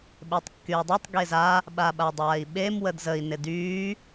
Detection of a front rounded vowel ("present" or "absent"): present